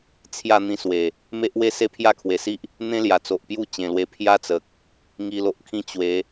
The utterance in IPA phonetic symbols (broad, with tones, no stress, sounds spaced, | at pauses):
t͡sʰ j a˥˧ n̪ ĩ˧ s w e˨˩ | m e˦ ʔ w e˦ s e˦ pʰ j a˦ kʰ w e˨˩ s i˦ ʔ | n̪ ẽ˦ l j a˨˩ t͡s o˨ ʔ p j u˦ t͡ɕ ẽ˨˩ l w e˧ pʰ j a˦ t͡s ə˨ k̚ | ŋ i˨˩ l o˨ ʔ kʰ ĩ˧ t͡ɕ w e˨˦